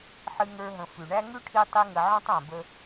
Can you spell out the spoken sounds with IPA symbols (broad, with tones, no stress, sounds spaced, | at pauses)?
ħ ɨ˧ ŋ ə˞˧ ɦ ə̃˨ f ʉ˨ ɳ æ˦ ŋ ʉ˦ ʈʰ i˧ tˤ i˧ ŋ ə˨ ʕ ɔ̃˦ tˤ æ̃˨ b ə˧